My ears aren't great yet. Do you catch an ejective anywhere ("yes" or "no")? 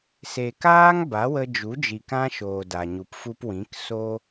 no